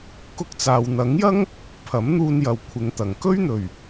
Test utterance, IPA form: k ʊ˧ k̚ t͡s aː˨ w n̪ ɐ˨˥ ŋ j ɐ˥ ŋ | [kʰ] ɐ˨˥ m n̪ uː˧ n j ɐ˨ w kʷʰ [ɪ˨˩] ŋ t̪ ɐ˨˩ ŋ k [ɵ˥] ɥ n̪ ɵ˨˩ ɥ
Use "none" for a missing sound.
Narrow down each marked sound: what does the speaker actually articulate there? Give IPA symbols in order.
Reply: pʰ, ɪ˨˧, ɵ˥

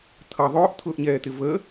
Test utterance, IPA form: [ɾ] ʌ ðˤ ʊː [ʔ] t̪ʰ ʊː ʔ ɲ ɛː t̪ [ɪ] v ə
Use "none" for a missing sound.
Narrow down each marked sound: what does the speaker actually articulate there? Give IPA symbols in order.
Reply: t̪ʰ, ʔ, ɪ

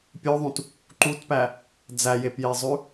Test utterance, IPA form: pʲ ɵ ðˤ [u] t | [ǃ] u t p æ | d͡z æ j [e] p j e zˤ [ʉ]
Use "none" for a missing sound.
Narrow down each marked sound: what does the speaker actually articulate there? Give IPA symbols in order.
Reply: ũ, ǃ, e, ʉ

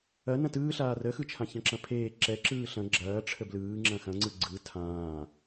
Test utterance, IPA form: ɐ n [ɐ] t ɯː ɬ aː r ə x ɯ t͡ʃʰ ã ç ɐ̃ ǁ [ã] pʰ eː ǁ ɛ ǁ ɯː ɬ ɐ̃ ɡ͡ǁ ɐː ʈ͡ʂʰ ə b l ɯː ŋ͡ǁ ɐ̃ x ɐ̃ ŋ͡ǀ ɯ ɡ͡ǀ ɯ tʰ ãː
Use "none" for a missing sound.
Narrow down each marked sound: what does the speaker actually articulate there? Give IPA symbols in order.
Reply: ɐ̃, ɐ̃

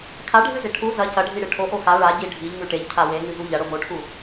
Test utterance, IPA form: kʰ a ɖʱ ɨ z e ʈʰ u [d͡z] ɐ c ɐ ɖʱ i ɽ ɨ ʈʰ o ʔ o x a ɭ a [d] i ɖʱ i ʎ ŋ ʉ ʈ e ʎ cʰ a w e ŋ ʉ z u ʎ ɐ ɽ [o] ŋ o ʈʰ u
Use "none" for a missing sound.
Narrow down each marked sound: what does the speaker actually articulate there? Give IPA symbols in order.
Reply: z, ɟ, o

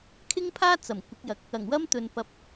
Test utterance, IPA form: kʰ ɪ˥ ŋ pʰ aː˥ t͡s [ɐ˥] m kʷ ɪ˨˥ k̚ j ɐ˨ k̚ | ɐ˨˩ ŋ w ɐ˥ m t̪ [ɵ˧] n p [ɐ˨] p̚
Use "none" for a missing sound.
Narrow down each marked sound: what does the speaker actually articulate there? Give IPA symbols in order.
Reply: ɐ˨˩, ɵ˨, ɐ˨

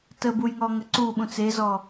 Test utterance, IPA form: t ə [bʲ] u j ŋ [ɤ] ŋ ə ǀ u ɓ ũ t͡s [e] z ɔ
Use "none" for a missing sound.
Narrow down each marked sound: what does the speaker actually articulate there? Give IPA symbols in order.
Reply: b, ɔ, e

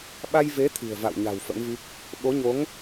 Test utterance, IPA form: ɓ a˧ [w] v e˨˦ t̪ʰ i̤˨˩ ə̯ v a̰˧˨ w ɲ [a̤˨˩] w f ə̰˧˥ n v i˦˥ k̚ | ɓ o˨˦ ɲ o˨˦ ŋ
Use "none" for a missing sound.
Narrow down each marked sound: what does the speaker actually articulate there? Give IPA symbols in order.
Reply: j, a̤˨˩

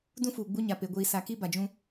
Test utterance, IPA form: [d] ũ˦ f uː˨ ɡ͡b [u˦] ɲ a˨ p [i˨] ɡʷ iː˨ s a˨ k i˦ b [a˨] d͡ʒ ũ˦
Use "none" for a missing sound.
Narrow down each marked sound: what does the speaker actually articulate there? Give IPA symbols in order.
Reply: d, u˦, e˨, a˨

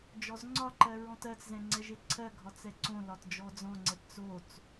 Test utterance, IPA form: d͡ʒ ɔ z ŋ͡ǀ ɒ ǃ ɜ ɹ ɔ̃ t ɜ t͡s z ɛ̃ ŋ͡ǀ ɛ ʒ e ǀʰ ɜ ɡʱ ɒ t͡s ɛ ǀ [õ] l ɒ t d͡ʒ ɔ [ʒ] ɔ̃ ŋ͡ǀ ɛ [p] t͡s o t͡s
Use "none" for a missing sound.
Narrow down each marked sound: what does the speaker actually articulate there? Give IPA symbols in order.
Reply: õ, d͡z, p

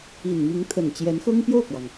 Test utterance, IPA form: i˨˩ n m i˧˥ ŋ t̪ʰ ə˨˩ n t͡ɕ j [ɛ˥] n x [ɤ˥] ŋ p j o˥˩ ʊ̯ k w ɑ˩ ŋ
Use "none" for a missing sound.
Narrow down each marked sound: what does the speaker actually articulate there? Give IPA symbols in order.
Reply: ɛ˧˥, ɤ˥

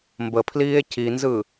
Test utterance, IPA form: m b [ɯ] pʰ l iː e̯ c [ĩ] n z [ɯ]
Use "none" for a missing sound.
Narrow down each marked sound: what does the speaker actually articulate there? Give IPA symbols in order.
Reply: ə, i, ɯ

